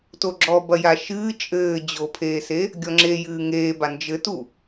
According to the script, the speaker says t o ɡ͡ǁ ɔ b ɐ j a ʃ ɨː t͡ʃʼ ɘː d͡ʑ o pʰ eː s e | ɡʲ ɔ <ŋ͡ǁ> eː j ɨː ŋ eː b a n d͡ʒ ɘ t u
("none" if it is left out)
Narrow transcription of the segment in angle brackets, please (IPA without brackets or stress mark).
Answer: ŋ͡ǁ